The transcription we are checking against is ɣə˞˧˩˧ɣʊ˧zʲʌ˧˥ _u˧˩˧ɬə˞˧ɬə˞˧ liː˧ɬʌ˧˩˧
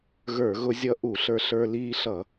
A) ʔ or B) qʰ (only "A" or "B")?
A